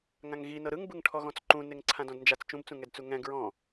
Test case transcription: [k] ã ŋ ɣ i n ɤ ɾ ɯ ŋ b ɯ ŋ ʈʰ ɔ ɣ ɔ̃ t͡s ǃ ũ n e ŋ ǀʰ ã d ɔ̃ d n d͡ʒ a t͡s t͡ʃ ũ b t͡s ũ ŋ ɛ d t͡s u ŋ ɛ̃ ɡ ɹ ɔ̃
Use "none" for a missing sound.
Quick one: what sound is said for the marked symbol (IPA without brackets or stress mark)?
ŋ